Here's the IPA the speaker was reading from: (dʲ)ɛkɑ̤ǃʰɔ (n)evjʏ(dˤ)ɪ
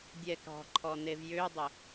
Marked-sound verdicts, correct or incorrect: correct, correct, correct

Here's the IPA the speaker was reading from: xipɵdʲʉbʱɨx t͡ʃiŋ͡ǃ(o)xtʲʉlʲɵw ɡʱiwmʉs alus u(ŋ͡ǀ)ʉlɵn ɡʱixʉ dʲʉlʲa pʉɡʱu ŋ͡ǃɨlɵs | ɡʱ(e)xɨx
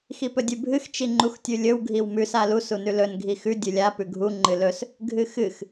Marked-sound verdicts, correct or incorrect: incorrect: u, incorrect: n, incorrect: ɨ

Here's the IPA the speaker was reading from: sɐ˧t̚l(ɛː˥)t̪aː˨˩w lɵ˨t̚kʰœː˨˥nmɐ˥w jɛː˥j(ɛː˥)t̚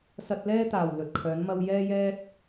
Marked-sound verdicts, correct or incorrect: correct, correct

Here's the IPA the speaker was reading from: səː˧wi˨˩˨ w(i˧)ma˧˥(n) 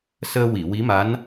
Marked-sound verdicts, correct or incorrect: incorrect: i˧˥, correct

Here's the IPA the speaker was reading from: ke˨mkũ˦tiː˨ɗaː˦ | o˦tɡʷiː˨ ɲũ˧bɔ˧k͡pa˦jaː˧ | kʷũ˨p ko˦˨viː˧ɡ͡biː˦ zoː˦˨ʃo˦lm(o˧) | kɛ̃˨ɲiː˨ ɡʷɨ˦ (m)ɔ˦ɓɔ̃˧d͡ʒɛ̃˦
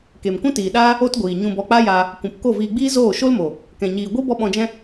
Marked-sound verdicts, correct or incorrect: incorrect: o˨, incorrect: b

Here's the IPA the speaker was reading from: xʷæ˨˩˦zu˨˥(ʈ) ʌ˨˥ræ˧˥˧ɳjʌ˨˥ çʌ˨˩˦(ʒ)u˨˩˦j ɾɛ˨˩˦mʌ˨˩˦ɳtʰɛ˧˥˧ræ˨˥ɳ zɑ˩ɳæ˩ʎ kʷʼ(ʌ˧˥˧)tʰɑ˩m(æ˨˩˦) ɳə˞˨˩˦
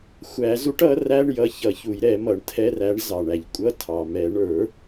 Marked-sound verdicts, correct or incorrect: correct, incorrect: ç, correct, incorrect: ɛ˨˩˦

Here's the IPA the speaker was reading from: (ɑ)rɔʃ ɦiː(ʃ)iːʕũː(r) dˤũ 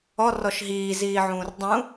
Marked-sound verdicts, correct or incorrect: incorrect: ɔ, incorrect: z, correct

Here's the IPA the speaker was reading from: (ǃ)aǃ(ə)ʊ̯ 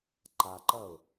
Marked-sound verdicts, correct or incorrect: correct, incorrect: ɐ

